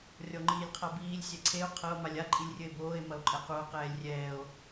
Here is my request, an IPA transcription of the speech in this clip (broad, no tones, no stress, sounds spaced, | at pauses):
rʲ ɔ ŋ͡ǃ iː lʲ qʰ a b iː lʲ sʲ ɛ ǀʰ e o̯ qʰ ɐ o̯ m a lʲ a ǃʼ i lʲ rʲ ɘ e̯ b oː e̯ m ɐ o̯ ǃʼ ɛ q u o̯ q ɛː lʲ rʲ ɛː o̯